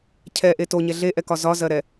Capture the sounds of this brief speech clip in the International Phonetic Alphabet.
cʰɛʔe toɲɛ ɮeʔɛkɒ zɒzɜɾɛ

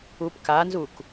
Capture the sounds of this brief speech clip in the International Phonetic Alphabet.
upkanzuk

